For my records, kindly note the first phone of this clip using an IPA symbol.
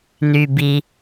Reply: n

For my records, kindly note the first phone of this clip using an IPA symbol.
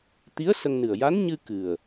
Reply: t̪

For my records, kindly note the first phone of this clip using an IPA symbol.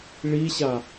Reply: ɭ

